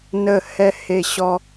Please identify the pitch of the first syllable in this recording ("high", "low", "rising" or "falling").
falling